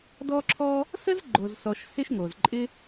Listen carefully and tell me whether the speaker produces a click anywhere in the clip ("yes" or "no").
yes